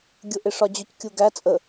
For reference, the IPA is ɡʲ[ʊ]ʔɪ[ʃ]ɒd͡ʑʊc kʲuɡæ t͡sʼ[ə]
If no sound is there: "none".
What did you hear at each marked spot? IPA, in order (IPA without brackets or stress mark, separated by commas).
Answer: ʊ, ʂ, ə